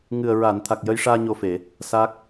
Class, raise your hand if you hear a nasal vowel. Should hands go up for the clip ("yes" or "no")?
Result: no